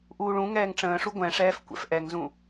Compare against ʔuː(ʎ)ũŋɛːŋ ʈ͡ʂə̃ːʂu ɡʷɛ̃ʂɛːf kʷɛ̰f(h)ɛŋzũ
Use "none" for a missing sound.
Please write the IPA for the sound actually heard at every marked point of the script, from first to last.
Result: ɭ, ʔ

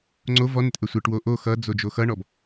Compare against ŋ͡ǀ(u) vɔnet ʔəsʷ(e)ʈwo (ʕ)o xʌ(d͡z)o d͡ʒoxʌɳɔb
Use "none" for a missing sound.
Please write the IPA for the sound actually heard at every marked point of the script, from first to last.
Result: o, e, ʔ, d͡z

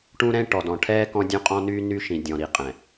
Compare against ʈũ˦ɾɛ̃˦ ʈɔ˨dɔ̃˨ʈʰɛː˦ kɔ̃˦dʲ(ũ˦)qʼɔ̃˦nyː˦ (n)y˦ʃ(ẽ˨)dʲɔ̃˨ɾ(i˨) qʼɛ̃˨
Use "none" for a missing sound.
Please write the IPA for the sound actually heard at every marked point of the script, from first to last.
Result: ũ˦, n, ĩ˨, i˨

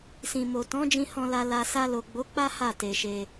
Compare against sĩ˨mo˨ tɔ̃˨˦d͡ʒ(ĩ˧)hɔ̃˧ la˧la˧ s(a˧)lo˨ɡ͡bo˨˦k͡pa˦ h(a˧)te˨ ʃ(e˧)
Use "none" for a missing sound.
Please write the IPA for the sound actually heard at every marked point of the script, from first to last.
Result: ĩ˧, a˧, a˦˨, e˧

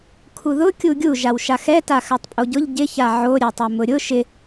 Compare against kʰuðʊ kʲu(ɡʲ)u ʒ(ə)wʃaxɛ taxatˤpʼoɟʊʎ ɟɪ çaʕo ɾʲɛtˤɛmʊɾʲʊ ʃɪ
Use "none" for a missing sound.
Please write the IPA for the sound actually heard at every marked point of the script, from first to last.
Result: ɡʲ, a

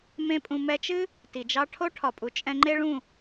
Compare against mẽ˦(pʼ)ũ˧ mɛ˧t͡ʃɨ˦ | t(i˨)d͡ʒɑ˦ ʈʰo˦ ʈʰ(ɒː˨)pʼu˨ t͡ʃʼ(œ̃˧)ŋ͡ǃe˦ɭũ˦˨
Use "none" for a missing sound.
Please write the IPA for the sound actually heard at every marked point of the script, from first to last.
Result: pʼ, i˨, ɒ˨, ɛ̃˧

